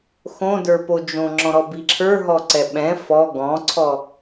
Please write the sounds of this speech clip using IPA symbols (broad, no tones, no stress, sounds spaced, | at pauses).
x õ d ə˞ p o d͡ʒ õ ŋ͡ǁ ɔ̃ ɾ ɔ b i ǁʰ ə˞ ɦ ɔ ǀ ɛ ɓ ɛ̃ f ɔ ɡ ɔ̃ ǀʰ ɔ